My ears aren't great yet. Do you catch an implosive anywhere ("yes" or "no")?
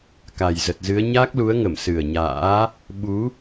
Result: yes